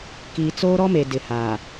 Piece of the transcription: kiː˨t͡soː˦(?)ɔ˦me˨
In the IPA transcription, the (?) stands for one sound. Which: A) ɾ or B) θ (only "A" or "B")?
A